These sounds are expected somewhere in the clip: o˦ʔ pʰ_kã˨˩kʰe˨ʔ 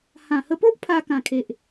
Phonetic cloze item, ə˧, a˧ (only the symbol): a˧